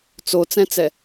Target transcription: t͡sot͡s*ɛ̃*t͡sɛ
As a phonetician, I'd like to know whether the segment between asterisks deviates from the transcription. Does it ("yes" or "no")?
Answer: no